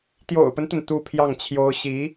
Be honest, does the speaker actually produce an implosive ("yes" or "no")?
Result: no